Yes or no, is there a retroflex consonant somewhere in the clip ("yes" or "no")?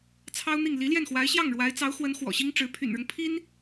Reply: yes